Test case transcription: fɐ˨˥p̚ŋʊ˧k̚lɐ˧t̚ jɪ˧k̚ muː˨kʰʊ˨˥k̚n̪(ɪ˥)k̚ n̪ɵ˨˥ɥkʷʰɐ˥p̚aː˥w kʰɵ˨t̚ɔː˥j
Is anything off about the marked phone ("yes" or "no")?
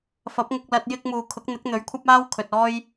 yes